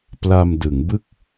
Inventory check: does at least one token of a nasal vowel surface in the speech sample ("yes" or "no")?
no